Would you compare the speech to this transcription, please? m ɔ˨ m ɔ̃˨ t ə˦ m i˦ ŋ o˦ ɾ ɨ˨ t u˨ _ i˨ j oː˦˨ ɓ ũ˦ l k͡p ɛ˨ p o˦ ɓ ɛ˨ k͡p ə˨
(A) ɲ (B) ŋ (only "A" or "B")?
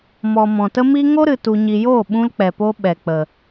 A